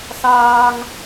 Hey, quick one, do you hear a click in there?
no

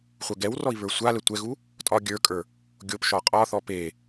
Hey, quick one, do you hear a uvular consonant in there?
yes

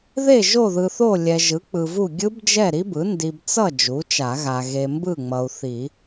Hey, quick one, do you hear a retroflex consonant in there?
no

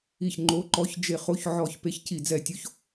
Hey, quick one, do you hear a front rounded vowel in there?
no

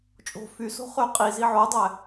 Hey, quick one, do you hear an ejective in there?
yes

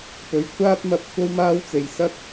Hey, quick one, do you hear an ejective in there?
no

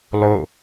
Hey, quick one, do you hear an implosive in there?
no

